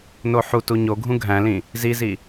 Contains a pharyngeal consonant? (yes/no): yes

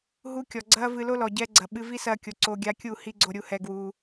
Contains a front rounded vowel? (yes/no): no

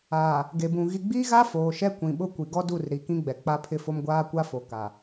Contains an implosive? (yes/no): yes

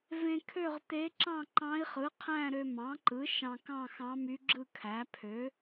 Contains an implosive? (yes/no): no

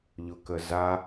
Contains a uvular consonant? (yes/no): no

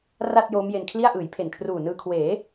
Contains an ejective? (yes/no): no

